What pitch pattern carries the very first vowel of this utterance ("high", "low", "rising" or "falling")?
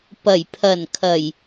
low